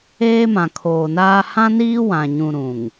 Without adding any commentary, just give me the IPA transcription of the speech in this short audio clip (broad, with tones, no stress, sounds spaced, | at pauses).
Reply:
eː˦ m ã˨ kʰ oː˨ n aː˦ h ã˦ n iː˦ w ã˨ ɲ ũ˨ ɾ ũ˨ ŋ